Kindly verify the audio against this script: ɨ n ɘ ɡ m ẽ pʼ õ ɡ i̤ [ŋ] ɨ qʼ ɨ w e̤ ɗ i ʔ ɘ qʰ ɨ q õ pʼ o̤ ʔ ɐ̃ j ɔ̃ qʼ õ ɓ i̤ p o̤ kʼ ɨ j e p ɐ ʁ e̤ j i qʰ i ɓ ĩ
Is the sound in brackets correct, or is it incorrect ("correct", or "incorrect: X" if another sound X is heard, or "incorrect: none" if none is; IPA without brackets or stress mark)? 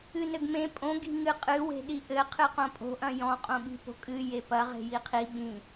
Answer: correct